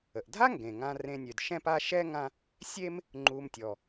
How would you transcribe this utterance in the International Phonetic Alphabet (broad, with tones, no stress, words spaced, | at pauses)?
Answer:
ə˩ʔdʱa˥ŋɡẽ˩ŋã˨ rẽ˨nʲø˩d ʃɛ̃˦ pa˦ʃɛ˥ŋã˦ | sʲe˦m | ŋ͡ǃu˨mtʲɔ˩